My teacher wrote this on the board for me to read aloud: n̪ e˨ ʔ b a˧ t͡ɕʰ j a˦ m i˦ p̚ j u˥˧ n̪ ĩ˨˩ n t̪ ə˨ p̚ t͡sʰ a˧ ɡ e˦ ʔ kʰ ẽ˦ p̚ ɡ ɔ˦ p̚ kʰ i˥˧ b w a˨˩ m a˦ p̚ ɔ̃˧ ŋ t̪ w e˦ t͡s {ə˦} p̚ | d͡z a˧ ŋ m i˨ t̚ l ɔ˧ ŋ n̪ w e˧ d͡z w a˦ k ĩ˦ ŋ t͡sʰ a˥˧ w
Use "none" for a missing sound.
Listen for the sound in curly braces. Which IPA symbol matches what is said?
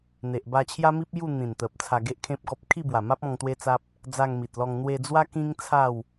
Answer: a˦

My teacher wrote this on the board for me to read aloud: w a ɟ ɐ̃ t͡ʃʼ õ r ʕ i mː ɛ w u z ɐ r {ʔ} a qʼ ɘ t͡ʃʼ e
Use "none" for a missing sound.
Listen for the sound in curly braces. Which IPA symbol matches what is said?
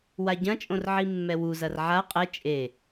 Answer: ʕ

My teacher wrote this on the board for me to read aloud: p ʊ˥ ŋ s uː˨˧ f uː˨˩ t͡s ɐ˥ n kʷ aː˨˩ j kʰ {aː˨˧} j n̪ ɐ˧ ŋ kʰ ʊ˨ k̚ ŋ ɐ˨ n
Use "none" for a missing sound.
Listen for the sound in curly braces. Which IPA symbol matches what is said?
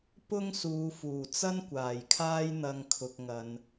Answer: aː˥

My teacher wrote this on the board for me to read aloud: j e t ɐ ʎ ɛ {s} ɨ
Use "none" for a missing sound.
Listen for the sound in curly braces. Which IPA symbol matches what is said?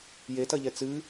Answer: t͡s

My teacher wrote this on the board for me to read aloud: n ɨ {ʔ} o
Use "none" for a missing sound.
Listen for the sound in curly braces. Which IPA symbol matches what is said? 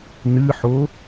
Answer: ħ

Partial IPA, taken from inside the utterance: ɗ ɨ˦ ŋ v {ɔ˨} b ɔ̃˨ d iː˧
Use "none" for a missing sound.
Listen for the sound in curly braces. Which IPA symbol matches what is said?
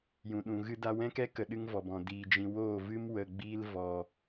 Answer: ɔ˨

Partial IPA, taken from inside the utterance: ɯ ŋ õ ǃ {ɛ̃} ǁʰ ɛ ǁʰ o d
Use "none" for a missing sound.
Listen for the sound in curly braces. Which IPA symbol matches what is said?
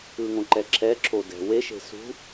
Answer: ɛ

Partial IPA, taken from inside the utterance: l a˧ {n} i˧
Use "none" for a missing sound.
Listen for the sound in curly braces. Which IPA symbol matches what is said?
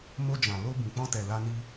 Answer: n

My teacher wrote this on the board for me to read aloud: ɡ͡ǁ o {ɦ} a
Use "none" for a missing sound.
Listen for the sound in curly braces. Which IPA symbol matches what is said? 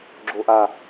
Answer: ʔ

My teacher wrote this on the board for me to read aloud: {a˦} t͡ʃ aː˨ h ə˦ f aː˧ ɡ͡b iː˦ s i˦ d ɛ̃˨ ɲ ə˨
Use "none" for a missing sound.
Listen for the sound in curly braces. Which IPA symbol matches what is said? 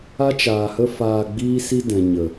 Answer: a˦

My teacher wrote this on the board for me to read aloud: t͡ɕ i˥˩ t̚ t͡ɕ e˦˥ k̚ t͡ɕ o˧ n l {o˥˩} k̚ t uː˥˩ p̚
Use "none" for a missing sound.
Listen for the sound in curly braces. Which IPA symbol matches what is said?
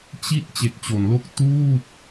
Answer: o˥˩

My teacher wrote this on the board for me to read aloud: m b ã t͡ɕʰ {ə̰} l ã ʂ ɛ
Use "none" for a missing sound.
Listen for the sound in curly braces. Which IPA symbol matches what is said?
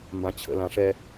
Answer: ə̰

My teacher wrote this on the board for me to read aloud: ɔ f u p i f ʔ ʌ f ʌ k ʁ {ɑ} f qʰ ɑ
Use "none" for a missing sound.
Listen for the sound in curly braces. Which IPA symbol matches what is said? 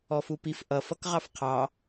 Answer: ɑ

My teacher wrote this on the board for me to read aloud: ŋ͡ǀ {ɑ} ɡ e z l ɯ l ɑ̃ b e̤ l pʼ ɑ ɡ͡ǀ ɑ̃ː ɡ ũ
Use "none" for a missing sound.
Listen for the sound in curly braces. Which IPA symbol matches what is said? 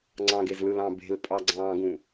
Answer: ɑ̃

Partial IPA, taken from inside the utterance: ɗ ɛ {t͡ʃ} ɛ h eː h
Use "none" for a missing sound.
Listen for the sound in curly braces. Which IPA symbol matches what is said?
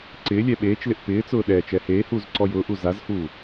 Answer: t͡ʃ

